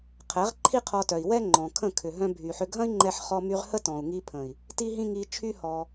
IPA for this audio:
qʰ ɛ˨˦ ʁ ǃʰ i˦ qʰ ɔ˧ t œ˨ i̯ w ɛ˦ ŋ͡ǃ ɔ̃˨ kʰ ə̃˦˨ kʰ ʏ˨ ɦ œ̃˧ bʱ y˨ ħ ʏ˧ ɡʱ ɐ̃˦ i̯ ŋ͡ǃ ɛ˧ ħ χ ɔ˧ m y˧ ʁ h ə˦ t ɔ̃˨ u̯ ŋ i˧ pʰ ə̃˨ i̯ | t i˦ ɦ ĩ˦ ŋ i˧ t͡ʃʰ y˦ h ɔ˧

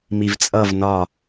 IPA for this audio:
m i v t͡sʼ ʌ v n ɒ

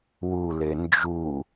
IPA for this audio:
w u l e n d͡ʒ u

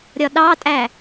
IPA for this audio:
ɾʲ ɒ ɗ ɑ tʼ æ

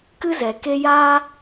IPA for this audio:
k ɨ˦ z ɛ˨ k e˧ j aː˧

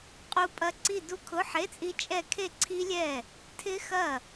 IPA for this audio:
qʼ u˦˥ pʼ ɐ˦˥ ǀ i˥˧ d u˦˥ kʰ ʊ˧˥˧ ħ e˧˥˧ t͡sʼ i˦˥ t͡ʃʼ ɛ˥˩ kʰ e˥˧ ǀʰ i˦˥ lʲ ɛ˥˩ | tʰ ɪ˦˥ x ɐ˥˩

